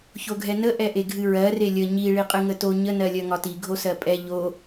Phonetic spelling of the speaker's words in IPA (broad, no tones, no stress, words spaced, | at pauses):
çoɡʱɛnə ʔɛʔeɡʱɨɹɜ relʲə ɲi ɭiqʼɨŋəto ɲə nɜlʲɜŋɒti ɡʱosɜpʼɛ ʎo